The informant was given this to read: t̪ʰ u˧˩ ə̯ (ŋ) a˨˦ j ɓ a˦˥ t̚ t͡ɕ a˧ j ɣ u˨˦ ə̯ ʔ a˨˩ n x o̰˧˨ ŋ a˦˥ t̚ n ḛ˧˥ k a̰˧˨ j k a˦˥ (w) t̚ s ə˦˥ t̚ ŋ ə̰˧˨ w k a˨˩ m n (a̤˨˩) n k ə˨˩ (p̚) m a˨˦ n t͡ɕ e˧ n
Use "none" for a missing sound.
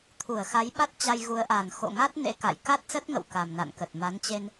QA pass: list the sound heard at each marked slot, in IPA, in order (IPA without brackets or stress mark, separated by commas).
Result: x, none, a̰˧˨, t̚